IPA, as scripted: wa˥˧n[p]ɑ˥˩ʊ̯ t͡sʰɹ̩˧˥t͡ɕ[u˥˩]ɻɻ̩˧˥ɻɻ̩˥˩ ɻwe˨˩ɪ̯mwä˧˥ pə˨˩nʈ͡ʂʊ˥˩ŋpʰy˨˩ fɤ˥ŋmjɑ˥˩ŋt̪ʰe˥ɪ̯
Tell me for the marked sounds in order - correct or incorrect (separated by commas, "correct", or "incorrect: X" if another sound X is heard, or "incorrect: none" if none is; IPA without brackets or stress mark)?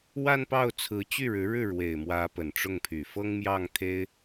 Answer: correct, incorrect: y˥˩